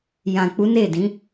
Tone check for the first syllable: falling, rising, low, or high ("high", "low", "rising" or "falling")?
low